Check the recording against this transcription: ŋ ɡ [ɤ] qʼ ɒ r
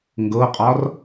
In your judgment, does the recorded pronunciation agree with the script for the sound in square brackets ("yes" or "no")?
yes